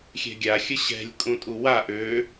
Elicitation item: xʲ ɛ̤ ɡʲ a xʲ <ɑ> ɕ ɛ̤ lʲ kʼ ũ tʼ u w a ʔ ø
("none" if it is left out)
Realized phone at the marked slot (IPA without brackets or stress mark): ə